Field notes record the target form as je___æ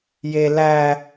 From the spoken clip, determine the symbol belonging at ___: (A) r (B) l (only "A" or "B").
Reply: B